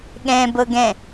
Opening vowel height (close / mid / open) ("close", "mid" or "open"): mid